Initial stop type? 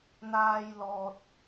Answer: plain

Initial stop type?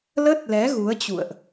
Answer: plain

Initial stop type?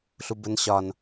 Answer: plain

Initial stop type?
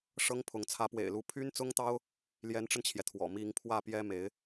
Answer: aspirated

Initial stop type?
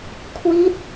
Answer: aspirated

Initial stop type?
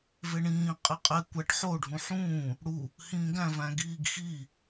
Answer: ejective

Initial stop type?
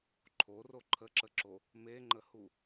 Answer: click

